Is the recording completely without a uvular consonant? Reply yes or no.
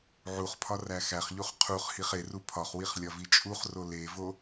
no